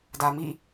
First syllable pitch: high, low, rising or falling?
low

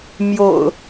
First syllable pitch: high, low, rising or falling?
low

